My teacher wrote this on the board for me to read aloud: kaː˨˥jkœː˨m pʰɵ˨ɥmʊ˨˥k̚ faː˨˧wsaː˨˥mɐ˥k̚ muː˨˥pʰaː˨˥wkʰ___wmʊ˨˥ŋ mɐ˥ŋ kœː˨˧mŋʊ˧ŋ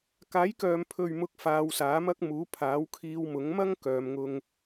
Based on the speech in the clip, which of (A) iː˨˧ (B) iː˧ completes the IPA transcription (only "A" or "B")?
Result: B